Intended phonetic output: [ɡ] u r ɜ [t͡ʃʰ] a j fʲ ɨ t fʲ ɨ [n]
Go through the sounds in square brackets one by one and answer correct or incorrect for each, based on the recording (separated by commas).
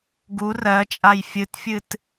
correct, incorrect, incorrect